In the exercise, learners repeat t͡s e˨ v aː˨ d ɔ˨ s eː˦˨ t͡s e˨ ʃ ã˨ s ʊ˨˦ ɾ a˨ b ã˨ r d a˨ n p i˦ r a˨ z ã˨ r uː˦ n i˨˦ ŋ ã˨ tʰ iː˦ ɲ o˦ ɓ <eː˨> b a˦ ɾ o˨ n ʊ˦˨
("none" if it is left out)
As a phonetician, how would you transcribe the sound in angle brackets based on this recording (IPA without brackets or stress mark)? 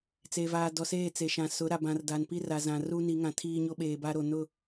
eː˨